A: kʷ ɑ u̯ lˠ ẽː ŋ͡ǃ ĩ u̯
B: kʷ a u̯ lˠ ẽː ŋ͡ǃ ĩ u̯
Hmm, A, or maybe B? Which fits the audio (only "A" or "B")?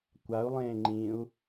B